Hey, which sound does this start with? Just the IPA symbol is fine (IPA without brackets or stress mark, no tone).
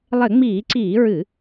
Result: lˠ